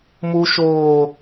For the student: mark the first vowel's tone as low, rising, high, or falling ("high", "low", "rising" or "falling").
low